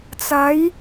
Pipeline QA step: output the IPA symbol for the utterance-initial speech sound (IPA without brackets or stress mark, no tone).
t͡s